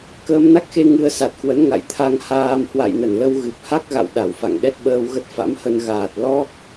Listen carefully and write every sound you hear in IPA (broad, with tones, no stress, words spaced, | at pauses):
kəː˧mna˦˥k̚xe˧ ŋɨ˧ə̯ sa˨˩t̚kwə˨˦n ŋa̰˧˨j t̪ʰa˧ŋhaː˧m hwa̰˧˨jnə˧˩nlə˧w ɣɨ˨˩p̚ha˦˥k̚ɣa̰˧˨w ɗa˧˩wfa̰˧˨ŋ ɗɛ˦˥t̚ɓəː˧wɣə˦˥t̚ fa̰˧˥mhə˧n ɣaː˨˩t̚ lɔ˦˥k̚